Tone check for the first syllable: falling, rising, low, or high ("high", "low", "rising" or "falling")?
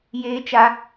high